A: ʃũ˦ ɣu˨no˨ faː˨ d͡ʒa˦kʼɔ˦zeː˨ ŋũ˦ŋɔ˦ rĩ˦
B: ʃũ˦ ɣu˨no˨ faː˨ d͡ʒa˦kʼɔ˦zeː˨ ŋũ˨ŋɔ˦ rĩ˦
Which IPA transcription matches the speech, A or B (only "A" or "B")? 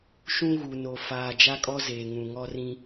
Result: B